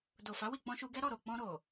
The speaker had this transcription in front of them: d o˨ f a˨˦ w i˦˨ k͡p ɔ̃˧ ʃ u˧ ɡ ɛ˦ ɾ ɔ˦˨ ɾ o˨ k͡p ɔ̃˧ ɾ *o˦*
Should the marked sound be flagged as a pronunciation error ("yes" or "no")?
yes